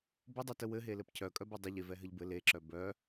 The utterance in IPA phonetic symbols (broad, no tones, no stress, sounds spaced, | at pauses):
b ʊ dˤ e t ə w ɘ ɦ e l ɘ p cʰ œ kʼ œ b ɘ dˤ ə ʎ e v ɛ ɦ ɘ ʎ b ɘ l e ǁ œ b œ